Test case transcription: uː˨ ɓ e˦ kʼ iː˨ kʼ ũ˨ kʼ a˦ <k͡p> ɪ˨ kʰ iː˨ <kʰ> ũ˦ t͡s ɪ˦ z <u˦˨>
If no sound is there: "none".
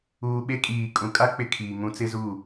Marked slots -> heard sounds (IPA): k͡p, ŋ, u˦˨

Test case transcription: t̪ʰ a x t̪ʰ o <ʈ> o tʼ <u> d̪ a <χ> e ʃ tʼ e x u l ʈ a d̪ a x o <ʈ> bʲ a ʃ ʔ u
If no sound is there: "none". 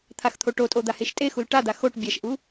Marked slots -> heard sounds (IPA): ʈ, o, h, ʈ

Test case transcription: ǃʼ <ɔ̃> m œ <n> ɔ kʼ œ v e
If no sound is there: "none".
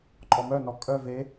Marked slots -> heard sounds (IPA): ɔ, n

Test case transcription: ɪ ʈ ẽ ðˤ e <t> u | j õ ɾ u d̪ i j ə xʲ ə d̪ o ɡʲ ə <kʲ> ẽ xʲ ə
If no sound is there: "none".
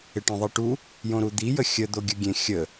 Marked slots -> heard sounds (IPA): ʈ, ɡʲ

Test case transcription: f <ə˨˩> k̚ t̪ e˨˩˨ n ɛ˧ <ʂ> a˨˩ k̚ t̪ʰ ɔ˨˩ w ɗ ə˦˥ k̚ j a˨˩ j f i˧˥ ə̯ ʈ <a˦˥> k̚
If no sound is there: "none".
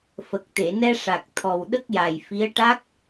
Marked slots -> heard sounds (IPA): ə˨˩, ʂ, a˦˥

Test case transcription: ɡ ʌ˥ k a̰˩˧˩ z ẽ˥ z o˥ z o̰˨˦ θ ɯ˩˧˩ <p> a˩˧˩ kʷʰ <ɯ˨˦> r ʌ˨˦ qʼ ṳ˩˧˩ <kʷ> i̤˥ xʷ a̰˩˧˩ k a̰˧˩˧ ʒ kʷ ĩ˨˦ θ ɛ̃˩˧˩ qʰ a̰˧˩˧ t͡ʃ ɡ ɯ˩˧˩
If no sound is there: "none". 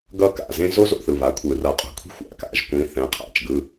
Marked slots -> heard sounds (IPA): β, ɯ˧˩˧, kʷʰ

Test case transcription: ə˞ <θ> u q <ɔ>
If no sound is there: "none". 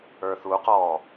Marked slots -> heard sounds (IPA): θ, ɔ

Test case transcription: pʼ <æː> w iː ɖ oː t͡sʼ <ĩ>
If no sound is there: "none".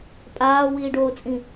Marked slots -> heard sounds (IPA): aː, ĩ

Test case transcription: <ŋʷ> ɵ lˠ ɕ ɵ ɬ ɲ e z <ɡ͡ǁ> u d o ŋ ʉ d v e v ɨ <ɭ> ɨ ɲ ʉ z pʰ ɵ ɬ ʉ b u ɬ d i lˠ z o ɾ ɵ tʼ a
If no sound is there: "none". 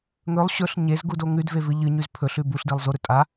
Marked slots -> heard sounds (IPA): ŋ, ɡ, ʎ

